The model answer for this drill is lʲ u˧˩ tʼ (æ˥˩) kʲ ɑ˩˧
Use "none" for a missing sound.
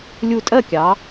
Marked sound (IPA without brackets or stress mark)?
ɜ˥˩